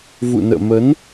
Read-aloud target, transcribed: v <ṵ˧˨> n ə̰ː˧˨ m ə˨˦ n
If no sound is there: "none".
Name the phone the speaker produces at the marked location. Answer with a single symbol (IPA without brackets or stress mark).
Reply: ṵ˧˨